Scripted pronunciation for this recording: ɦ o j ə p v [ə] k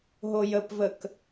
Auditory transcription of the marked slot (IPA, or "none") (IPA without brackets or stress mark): ə